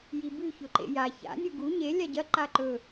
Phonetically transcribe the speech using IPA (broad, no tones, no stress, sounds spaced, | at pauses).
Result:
j i b ʉ ç ɵ ǃ ḛ j a ç a̰ nʲ u ɡ u ɲ e lʲ a ɟ ɐ ǃ a ǃ ɵ